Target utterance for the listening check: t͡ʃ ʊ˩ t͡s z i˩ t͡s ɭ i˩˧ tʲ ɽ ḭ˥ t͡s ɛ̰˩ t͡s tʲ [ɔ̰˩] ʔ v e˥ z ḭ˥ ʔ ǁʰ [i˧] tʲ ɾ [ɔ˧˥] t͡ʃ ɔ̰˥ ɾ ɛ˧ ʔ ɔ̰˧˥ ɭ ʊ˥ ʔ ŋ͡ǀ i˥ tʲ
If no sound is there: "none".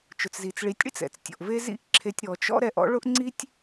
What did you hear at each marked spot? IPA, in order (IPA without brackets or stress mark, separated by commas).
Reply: ɔ̰˩, e˧, ɔ˩